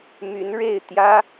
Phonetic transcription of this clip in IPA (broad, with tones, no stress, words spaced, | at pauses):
my˧˥nɻe˥˩ɪ̯ t̪jä˥